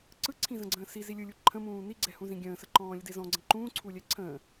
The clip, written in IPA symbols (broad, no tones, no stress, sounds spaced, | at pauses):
ǀ ɯ ǀʰ ĩ z ə̃ ɡ͡ǀ ə̃ː s i z i lʲ ɯ lʲ u ǃʰ ə̃ m ũː n i ɡ͡ǀ ɛ h ũ z ĩ ɡʲ ə̃ː s ə ǃ ɔ̃ː lʲ ə d e z ɔ̃ ɡ͡ǀ ə̃ ǃ ũː ǀʰ u lʲ ɛ ǀʰ ə̃ː